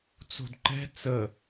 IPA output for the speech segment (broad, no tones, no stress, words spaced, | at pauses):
t͡so̤dǃɛ̤ t͡sə